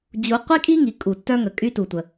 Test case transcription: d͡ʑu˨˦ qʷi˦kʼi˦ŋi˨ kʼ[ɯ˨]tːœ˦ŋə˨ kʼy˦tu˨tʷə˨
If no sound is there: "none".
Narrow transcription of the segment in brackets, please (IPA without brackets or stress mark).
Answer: u˨